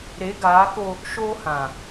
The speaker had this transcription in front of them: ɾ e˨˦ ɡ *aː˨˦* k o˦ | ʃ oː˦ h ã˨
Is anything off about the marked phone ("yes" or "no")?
no